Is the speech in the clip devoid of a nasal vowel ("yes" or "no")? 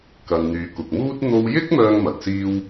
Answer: yes